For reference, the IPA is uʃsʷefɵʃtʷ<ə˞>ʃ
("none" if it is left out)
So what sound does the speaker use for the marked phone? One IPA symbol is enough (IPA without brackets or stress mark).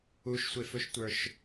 ə˞